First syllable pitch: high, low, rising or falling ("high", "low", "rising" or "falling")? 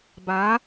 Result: rising